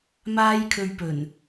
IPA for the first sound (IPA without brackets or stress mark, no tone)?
m